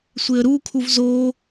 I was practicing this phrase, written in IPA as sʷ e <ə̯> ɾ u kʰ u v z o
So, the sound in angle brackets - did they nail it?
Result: yes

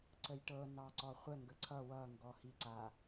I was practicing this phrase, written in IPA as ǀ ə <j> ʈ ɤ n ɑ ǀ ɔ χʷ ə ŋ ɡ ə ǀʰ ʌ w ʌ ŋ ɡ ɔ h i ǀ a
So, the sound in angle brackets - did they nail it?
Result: yes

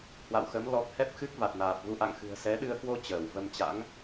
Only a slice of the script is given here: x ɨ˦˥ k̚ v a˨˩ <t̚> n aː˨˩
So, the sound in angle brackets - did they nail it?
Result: yes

